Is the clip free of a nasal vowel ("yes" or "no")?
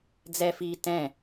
no